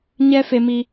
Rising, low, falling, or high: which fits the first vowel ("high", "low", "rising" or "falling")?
high